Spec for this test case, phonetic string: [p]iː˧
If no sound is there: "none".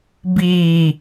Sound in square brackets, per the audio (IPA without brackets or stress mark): b